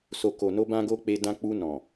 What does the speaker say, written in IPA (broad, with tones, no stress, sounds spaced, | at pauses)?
s o˨ k o˨ n o˧ b ã˦ ɡ o˦ k͡p e˧ d ã˧ k͡p u˧ n ɔ̃˨